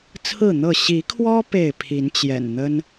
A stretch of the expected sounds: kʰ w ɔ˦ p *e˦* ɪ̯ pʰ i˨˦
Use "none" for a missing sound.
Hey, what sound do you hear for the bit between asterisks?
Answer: e˥˨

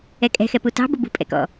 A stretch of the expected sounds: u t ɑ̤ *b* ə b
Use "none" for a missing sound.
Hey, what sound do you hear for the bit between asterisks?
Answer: b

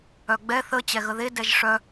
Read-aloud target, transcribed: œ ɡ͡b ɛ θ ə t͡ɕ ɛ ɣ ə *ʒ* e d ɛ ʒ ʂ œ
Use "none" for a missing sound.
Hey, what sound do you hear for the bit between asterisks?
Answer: ð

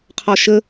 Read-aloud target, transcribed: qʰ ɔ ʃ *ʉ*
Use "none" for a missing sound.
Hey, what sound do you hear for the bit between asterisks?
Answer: ə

